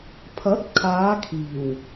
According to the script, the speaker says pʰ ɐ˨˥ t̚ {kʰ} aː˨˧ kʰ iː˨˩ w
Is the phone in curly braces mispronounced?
no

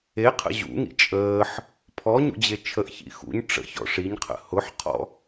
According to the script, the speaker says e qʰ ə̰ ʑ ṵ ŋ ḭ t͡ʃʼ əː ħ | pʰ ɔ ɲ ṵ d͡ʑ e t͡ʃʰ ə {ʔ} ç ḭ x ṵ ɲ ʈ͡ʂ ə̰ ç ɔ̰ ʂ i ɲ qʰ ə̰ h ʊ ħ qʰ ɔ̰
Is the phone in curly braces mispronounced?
no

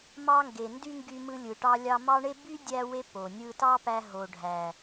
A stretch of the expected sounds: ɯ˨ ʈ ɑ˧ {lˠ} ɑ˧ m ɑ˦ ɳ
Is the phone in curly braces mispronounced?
yes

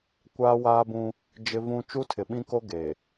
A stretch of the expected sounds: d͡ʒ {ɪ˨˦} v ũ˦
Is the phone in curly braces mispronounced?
yes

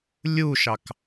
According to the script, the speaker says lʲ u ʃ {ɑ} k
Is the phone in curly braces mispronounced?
no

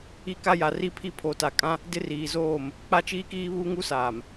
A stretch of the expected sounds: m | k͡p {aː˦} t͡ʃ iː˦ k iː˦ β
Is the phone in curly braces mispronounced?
yes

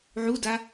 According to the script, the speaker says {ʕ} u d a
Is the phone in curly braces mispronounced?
no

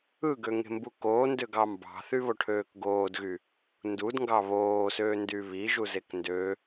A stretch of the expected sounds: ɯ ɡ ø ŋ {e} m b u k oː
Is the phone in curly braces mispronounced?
yes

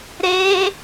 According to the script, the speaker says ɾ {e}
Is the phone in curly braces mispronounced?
no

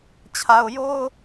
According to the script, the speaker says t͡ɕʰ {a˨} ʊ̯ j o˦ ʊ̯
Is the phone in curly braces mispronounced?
no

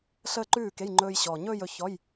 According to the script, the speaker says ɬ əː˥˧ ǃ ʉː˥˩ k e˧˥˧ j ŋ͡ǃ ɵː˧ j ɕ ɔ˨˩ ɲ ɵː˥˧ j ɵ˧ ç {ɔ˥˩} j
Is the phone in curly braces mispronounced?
yes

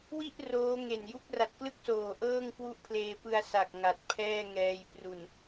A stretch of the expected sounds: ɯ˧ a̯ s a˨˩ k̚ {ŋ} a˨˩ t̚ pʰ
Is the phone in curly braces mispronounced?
no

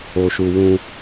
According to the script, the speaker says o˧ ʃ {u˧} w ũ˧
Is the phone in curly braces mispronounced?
no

